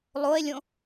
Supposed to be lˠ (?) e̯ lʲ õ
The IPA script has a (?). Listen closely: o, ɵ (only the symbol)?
o